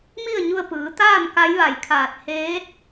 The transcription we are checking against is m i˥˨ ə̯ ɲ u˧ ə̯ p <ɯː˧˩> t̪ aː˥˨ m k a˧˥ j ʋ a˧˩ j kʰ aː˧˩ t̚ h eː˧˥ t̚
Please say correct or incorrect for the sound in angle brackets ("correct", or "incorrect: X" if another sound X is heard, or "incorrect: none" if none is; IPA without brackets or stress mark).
incorrect: ɯː˩˧